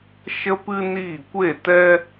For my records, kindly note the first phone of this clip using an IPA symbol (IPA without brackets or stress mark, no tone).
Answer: ʃ